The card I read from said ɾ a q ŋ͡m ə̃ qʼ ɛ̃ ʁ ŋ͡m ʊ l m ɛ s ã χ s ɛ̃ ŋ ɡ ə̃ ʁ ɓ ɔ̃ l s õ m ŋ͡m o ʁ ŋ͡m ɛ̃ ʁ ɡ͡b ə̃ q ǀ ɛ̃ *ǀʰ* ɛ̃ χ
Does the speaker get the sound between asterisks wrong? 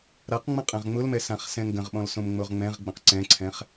no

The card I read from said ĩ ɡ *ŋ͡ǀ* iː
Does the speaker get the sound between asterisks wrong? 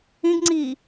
no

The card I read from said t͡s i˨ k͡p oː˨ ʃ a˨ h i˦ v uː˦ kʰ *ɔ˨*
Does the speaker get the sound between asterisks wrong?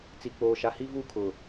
yes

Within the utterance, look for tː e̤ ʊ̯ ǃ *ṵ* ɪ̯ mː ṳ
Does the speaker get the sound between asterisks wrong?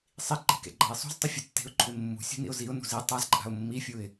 yes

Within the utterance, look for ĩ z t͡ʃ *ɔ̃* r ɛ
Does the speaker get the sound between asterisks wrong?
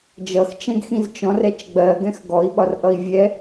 no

